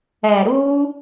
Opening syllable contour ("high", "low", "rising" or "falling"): low